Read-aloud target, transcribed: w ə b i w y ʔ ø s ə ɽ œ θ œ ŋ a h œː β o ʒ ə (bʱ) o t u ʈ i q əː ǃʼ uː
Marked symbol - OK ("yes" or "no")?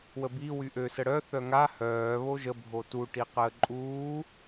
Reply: yes